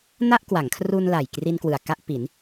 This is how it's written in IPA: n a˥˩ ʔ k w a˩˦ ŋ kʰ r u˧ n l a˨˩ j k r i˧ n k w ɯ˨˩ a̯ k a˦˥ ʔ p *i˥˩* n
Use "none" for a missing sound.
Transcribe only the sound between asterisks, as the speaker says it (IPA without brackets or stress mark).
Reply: i˩˦